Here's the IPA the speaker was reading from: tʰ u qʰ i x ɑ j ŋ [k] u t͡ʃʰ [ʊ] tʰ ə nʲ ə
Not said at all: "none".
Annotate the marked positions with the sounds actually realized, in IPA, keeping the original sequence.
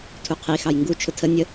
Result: ɡ, ʊ

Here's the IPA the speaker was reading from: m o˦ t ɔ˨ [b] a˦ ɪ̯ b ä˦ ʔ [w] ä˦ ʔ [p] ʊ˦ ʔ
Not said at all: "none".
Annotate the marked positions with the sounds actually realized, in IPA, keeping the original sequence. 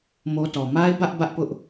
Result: m, b, p

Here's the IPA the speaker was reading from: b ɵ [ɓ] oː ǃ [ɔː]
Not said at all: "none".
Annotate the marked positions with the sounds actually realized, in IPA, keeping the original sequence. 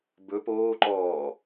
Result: p, ɔː

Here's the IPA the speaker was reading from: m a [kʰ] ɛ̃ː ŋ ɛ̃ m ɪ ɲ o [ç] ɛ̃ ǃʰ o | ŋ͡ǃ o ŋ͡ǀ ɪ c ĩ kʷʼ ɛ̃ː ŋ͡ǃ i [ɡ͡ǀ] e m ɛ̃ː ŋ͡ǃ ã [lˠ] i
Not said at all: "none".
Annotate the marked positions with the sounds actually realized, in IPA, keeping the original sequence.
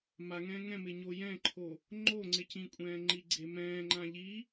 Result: ŋ, j, ɡ͡ǀ, ʎ

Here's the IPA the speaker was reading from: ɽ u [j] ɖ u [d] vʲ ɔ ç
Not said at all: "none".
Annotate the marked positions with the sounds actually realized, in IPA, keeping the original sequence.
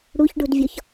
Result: ç, d

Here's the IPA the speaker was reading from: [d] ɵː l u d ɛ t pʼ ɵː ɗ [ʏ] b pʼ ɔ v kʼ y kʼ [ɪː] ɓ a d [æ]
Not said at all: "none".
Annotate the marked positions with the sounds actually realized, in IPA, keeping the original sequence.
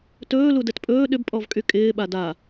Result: t, ʏ, ɪː, a

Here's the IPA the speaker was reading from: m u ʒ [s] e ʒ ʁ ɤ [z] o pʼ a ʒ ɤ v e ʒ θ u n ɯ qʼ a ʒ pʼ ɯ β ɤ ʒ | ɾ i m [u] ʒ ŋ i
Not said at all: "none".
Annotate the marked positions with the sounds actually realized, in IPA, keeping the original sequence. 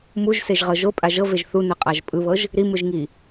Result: s, ʒ, ɯ

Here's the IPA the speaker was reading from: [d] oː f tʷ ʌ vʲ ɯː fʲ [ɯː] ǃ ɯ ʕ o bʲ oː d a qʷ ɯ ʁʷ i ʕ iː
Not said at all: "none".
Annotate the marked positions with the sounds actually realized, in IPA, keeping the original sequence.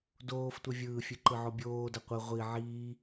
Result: d, ɯ

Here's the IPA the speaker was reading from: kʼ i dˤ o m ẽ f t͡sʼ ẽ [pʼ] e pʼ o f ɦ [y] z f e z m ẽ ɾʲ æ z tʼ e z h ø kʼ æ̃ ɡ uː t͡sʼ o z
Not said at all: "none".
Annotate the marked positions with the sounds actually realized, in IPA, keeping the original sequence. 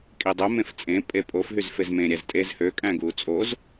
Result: pʼ, y

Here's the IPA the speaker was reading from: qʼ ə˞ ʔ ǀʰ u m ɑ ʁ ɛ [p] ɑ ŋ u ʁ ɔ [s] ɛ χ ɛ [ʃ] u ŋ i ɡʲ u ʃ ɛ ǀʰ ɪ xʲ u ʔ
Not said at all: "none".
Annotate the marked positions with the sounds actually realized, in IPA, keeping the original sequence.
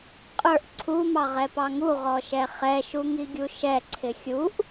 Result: p, ʃ, ʃ

